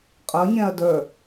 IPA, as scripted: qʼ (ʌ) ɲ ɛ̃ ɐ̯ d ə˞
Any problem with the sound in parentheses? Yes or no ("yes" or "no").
no